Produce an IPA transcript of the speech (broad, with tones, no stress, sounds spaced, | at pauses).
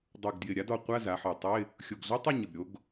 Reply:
dˤ u˨˩ ɡ d j ɪ˨˩ ɾʲ a˩˥ d ɔ˩˧ qʷ a˧˥˧ z a˩˧ ħ ɔ˨˩ tˤ ɪ˧˥˧ | xʲ o˨˩ ɡ ɮ ə˧˥˧ tˤ u˥˨ ɲ ə˨˩ b ɾʲ o˩˥ ɡ